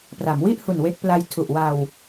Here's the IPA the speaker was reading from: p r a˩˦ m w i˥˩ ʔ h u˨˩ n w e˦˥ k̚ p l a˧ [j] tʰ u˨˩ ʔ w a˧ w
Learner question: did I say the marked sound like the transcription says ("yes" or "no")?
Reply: yes